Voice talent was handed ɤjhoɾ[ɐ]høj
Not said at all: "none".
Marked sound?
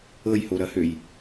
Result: ɐ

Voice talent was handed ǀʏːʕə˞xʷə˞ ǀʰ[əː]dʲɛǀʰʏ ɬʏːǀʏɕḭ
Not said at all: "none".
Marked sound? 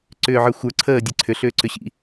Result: əː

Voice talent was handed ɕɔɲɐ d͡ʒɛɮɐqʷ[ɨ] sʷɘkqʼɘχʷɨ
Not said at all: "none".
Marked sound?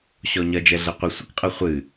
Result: i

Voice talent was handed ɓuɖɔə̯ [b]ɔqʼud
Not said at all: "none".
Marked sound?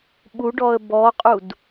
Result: b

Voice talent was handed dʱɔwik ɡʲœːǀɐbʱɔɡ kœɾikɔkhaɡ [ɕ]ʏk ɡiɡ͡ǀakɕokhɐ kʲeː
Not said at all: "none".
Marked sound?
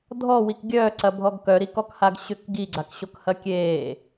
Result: ɕ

